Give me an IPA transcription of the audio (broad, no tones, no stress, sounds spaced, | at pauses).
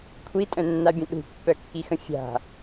kʷʰ i tʼ œ̃ nː a bʲ ə̃ ɗ ṳ pː œ kː i x ə̃ fʲ a̤